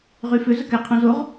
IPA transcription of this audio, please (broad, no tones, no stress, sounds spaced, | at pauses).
ʁ y f ø z ə k ɛ qʰ ũ z o ʁ